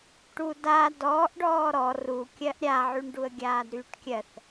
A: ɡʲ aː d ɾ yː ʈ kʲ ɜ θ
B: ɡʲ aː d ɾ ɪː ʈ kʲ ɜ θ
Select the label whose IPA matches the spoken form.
A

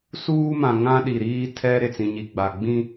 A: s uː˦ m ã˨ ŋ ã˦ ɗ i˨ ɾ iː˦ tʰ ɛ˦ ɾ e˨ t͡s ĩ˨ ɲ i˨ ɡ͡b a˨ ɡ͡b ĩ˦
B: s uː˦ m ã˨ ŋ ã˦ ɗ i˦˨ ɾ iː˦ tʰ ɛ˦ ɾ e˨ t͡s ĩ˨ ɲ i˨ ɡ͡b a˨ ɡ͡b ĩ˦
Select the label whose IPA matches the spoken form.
A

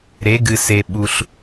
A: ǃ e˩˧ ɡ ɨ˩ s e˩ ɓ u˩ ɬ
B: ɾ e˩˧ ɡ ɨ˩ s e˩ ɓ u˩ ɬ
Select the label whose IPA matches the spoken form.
B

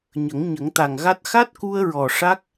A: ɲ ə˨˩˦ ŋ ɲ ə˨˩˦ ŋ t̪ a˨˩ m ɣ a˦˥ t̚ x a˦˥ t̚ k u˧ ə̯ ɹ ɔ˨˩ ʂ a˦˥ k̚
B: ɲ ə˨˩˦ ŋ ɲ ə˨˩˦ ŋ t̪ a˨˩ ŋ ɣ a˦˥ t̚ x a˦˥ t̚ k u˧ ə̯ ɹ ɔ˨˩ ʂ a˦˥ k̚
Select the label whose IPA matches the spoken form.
B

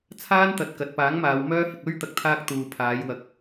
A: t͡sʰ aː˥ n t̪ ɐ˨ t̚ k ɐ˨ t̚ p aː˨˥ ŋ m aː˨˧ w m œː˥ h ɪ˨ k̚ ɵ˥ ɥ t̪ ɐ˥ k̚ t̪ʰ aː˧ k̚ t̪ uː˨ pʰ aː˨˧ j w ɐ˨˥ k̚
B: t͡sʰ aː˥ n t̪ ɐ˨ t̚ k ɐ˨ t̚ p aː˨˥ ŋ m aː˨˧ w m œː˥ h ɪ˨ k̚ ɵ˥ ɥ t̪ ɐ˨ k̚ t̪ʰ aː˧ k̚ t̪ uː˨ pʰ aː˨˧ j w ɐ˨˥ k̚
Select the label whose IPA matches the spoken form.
B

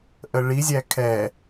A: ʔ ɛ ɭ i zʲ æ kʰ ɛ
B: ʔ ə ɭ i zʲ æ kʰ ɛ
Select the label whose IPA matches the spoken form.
B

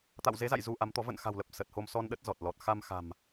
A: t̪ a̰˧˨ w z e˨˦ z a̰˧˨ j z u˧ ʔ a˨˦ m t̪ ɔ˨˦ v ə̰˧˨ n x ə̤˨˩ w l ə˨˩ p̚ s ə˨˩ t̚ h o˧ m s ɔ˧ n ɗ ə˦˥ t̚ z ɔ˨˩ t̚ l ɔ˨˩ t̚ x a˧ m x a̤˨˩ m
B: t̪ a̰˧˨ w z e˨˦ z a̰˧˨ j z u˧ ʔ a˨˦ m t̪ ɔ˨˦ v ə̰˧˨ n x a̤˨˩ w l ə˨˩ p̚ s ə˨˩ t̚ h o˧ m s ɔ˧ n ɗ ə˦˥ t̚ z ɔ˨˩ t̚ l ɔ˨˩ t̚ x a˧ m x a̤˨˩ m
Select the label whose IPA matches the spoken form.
B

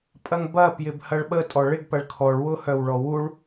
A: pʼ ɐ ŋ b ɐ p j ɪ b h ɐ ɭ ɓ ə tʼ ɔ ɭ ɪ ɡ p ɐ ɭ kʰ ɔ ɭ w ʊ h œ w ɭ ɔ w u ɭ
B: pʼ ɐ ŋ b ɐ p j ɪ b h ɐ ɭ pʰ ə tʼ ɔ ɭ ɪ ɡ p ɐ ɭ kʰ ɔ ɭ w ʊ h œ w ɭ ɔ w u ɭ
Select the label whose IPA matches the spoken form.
A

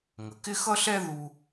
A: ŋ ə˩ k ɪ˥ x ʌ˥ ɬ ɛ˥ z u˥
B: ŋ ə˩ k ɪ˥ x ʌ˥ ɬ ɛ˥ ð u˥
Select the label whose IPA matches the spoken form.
B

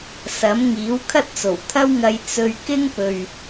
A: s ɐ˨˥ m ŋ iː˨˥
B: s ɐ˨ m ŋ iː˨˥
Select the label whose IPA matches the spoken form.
A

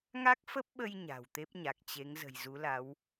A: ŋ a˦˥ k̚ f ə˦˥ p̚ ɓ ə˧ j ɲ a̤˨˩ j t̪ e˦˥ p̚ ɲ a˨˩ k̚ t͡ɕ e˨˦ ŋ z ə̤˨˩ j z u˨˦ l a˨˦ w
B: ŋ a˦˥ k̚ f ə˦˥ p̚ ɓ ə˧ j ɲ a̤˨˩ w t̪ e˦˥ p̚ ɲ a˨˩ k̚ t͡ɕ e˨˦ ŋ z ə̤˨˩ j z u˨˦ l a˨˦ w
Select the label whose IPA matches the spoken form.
B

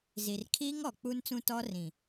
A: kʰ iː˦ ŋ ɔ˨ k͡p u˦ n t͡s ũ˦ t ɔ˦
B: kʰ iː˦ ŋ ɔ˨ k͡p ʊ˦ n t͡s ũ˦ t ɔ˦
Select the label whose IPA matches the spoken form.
A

